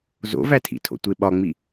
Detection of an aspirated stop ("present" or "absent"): present